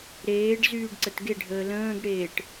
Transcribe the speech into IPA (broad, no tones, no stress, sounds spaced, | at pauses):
ɾ eː ɖ z yː ɖ ǀ ə t ɡ e ɖʱ əː l ə̃ː ɡ ɽ eː ʈ